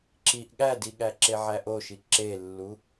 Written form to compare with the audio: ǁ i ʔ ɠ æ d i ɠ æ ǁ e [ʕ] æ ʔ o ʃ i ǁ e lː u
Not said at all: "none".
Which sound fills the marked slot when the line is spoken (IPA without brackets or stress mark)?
ʕ